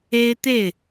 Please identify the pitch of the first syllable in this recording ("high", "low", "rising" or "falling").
high